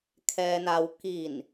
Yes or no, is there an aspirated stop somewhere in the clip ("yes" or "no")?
yes